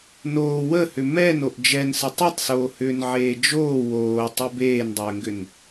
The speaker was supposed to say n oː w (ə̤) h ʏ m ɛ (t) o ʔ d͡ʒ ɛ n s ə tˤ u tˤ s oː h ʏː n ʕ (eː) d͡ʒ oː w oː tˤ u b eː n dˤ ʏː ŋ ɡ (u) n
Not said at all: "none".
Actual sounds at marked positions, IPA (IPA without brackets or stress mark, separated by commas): ə, n, eː, ʏ